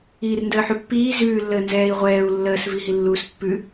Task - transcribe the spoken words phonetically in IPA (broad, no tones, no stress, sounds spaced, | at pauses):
iː r n d əː ħ ʉ pː iː z ʉː lː əː n z ɛː i̯ ʁʷ ɛː u̯ lː əː s v i ɦ i lː uː s pː ʉ